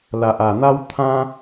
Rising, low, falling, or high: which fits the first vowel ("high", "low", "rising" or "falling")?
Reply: low